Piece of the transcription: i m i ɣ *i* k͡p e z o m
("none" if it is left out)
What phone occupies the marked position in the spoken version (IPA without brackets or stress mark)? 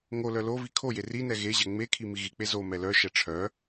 i